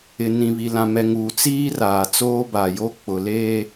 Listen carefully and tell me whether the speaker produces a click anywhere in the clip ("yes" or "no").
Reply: no